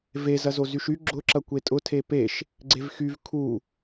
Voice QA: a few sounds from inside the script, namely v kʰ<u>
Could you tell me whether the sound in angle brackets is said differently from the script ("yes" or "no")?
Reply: no